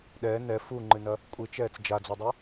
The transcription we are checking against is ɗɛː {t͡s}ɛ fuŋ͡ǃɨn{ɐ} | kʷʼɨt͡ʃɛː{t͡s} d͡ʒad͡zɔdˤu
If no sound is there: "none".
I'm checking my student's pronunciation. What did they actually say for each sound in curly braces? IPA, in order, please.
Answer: n, ɐ, t͡s

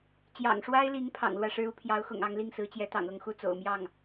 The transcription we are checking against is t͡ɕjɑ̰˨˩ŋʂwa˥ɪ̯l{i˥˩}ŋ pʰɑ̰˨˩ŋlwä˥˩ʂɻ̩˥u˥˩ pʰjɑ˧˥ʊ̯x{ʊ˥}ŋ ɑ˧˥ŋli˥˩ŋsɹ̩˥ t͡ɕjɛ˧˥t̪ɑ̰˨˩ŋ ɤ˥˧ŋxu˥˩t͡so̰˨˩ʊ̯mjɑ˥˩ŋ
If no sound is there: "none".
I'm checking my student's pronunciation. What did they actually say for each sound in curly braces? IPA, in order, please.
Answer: i˧˥, ʊ̰˨˩

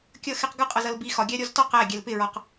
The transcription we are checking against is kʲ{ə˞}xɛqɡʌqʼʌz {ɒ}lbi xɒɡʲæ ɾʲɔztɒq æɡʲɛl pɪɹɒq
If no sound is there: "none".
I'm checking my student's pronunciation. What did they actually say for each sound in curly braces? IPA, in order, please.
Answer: ʌ, ʌ

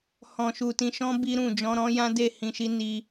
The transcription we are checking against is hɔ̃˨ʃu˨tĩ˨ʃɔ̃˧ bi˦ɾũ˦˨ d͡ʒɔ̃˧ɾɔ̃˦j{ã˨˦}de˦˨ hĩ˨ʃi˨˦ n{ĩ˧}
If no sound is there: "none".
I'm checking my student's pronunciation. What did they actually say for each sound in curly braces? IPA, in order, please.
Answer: ã˦, i˧

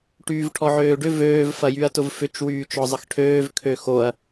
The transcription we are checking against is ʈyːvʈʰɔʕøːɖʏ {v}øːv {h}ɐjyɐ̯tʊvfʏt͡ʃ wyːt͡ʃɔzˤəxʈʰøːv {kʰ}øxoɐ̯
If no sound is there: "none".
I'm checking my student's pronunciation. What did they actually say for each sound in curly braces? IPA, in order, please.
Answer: v, f, kʰ

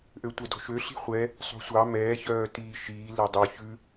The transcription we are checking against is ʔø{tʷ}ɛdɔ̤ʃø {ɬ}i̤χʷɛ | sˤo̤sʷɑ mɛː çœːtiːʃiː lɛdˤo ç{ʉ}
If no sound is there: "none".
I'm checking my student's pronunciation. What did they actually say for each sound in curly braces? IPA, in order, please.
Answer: tʷ, ɬ, ʉ

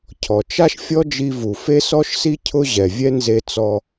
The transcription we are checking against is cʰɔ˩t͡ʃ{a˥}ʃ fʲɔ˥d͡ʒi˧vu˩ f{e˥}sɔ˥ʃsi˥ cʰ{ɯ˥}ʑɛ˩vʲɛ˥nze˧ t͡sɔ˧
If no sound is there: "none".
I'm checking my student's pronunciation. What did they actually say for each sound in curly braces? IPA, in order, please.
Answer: a˥, e˥, ʊ˥

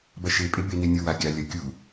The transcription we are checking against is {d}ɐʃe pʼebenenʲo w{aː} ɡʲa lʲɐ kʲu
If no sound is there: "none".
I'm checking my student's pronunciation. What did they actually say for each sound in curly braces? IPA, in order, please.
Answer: b, a

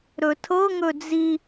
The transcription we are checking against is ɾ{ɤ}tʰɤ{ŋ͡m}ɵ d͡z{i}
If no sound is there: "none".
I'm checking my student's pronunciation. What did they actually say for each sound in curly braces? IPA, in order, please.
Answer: ɵ, ŋ, i

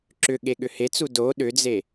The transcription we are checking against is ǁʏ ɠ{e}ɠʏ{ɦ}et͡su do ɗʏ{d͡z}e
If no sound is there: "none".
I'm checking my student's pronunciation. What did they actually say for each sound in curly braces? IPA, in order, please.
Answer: e, h, d͡z

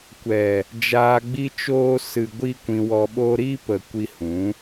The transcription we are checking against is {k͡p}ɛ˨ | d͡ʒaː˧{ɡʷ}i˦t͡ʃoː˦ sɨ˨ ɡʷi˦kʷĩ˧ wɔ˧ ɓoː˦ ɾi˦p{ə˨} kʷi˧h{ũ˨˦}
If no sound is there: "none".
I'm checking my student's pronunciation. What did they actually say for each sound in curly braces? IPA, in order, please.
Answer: kʷ, ɡ͡b, ə˨, ũ˨˦

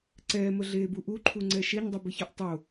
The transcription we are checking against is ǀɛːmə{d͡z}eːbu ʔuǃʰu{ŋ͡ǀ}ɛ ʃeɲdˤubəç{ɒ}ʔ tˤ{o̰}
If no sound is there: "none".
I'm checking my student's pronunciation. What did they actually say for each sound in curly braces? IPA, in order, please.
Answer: ɮ, ŋ͡ǀ, ɒ, o

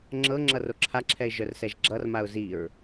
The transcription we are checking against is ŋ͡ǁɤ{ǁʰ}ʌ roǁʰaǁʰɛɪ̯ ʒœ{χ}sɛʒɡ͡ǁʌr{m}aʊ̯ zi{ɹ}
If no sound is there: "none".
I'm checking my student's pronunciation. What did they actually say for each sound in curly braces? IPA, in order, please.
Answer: ŋ͡ǁ, r, m, ɹ

